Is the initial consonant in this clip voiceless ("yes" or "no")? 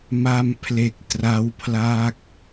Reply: no